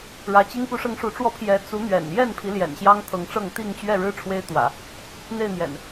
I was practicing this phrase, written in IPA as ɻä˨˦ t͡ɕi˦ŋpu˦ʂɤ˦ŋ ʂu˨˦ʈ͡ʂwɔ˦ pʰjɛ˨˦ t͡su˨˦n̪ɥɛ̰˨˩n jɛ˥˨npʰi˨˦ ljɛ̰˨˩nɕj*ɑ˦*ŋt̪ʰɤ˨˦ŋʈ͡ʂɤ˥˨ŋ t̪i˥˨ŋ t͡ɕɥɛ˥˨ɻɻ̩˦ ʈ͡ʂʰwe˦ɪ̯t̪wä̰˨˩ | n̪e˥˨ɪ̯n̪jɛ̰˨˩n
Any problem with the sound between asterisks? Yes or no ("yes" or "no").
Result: no